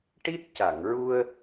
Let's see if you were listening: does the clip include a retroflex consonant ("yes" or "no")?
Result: yes